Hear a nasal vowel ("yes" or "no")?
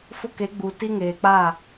no